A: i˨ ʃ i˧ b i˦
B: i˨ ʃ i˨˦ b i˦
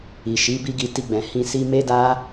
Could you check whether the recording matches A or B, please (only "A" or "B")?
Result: B